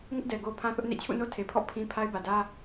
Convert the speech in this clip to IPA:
ŋ ɪ˦ ʔ d ɛ˨ ɡ o˦ pʰ ã˦ θ ʊ˦ ʔ n ḛ˦˨ t͡ɕʰ ṵ˦˨ n o˦ tʰ e˨ pʰ ɔ̰˦˨ pʰ ĩ˦ pʰ a˦ ɪ̯ b ä˨ d ä˦

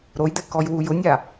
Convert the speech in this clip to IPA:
ɾ o j d̪ ɛ k ɔ j w u j ʊ nʲ a

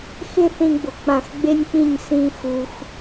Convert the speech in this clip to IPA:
x ɪ˥˧ θ ĩ˧ ɡ͡b ʊ˩˧ k͡p ã˧˩ x ɡ͡b e˥ nʲ k͡p ĩ˥˧ ɲ s ĩ˥ x u˧ x

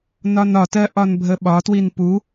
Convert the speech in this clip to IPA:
n ɒ n ɒ t ɜ ʔ ɒ n bʱ ə ɓ ɒ t w i n p u

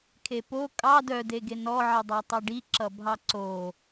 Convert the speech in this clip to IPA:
kʰ e p o kʼ ɑ d œ d e ɡ e n ɔ ʕ i dˤ ɑ tˤ ɑ ɖ i ǁ ʌ bʱ ɑ ǀ o

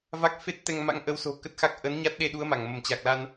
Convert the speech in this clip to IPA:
v a˦˥ k̚ f e˦˥ t̚ t̪ ɛ˧ ŋ m a̰˧˥ ŋ ʔ ə˨˦ w s o̤˨˩ k ə˦˥ t̚ x a˦˥ k̚ ʔ ə˨˦ n ɲ a˦˥ t̚ ɗ e˧ ɗ u˨˦ ə̯ m a˧˩ ŋ m ə˧˩ m t͡ɕ a˨˩ k̚ l a˧ n

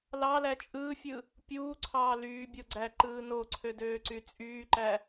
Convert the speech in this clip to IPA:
l ɑ l æ t͡ʃʼ ɯː fʲ ɯ | pʲ uː ǀʰ ɑː l yː bʲ o ɡ͡ǀ æ ǃ ɯː n o ǀʰ ø d øː ǀ y t͡sʼ yː ǃ æ

